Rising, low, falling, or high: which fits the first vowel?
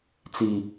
low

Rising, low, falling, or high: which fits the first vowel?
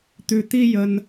low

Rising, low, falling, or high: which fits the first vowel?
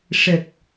low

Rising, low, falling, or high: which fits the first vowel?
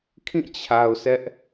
falling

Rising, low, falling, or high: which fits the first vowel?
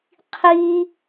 high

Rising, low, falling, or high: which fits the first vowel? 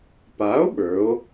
rising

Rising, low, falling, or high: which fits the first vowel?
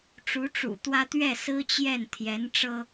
rising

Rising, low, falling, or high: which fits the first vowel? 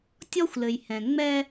high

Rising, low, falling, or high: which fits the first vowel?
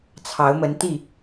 rising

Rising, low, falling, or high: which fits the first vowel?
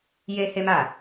high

